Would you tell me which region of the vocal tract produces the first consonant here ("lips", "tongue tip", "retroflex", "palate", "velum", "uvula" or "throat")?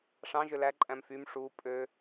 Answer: retroflex